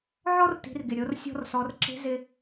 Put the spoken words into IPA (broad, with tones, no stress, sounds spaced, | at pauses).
ʕ ɔ˥ r t i̤˩˧ r ɡ ɪ˩ ɾʲ o˩˧ r sʲ ɔ̤˧ r s ɔ˩˧ r ǁ e̤˧˥ z ɪ˧